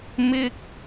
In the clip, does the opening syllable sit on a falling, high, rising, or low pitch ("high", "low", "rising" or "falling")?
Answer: high